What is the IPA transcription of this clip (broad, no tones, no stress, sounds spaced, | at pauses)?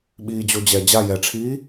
ɓ iː d͡ʑ o d͡ʑ ɛ d͡ʑ a j ɛ ʈ͡ʂʰ iː